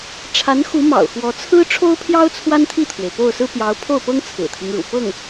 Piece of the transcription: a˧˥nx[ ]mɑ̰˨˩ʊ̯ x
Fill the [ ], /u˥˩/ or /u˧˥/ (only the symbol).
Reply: u˧˥